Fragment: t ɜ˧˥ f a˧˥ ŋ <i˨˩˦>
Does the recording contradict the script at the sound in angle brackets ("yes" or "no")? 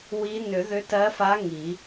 no